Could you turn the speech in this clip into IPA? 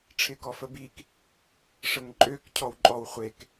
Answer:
ʈ͡ʂʰɪkɔfəbik | ʂəŋǃʼøkcʰɔw ǃʼɔw χʷek

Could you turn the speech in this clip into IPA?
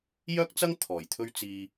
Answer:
jœː˥k̚t͡sɐ˥ŋ t̪ʰɔː˨˩jt̪ʰɵ˥ɥt͡siː˧

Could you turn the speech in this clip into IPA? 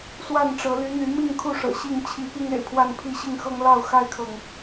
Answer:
swa˥˨nʈ͡ʂɤ˨˦ ly˨˦n̪y˨˦ mi˥˨ŋkʰu˥˨ʂɤ̰˨˩ ɕi˥˨ŋ t͡ɕʰi˨˦ pi˦ŋḛ˨˩ɪ̯pʰwa˥˨npʰi˥˨ ɕi˥˨ŋxɤ˦ŋlɑ˥˨ʊ̯ xa˦ɪ̯kʰɤ˨ŋ

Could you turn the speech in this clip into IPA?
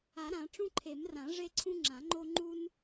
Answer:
a˨˩˦ɾã˨˩˦ ʈ͡ʂũ˦ǃʰe˨˩˦mrã˨˩˦ ʐe˦ǀʰũ˦ŋ͡ǁã˨˩˦ŋ͡ǃo˦ ŋ͡ǃu˦n

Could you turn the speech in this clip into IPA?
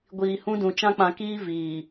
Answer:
ɡʷiː˨hũ˦dũ˨ t͡ʃã˦k͡pã˨kiː˦ viː˨

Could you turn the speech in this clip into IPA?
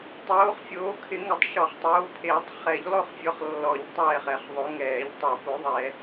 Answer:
tˤoː˨˦χfʲoː˨˦ kʰɪ˨˩˦ŋɪ˨˦tˤ ʃɔ˨˩˦χtˤoː˨˦pʰeː˨˩˦tˤ χɛ˨˩˦ʎlˠo˦˨χfʲɔ˨˦χ lːɔ˨˩˦ʎ tˤɛː˦˨χɛ˨˩˦χðˤo˨˦ŋɛː˨˩˦ʎ tˤu˨˩˦ po˨˦ðˤɛ˨˩˦

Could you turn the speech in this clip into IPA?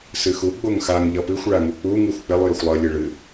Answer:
sɨxu ɡ͡boŋxaŋ ʎʌpɨxʷ ɭaŋuk͡pu ŋɯxʷk͡pɪlˠ jʌxʷlˠʌ lʲɨɭɨ

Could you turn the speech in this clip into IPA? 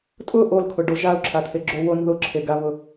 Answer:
tʼʊ ʔolkʰʊɖo ʒaʊ̯ǁʰat̪ʰeɡ͡ǁo won ðʊǁʰeɡaβʊ

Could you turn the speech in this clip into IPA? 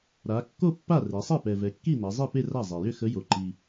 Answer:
ɾa˩˧ kːo˥˧pːa˥˩ re˩˧sˤe˥˩pɛ˨˩ vɛ˩˧kːi˥˩na˩˧ zˤi˥˩ pe˥˧ra˥˩zˤe˨˩ jʏ˥˩xə˧˥ jo˨˩ǃi˨˩

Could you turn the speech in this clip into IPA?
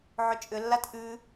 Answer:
ʕʏt͡ʃʼʏlːat ʔʉ

